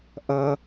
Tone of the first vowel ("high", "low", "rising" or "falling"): high